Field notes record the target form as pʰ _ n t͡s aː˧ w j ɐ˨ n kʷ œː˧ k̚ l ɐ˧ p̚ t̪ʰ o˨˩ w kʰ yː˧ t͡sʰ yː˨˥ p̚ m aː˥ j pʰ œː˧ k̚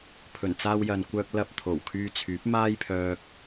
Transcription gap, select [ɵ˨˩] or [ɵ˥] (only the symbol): ɵ˨˩